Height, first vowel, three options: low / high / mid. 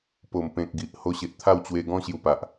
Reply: mid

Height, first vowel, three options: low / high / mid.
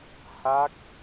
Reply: low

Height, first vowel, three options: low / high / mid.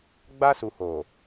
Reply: low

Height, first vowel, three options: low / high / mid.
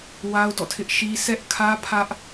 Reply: low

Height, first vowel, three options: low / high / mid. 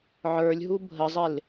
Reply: mid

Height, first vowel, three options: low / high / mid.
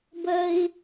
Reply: mid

